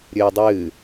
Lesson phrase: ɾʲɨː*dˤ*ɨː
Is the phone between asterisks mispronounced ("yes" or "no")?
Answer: no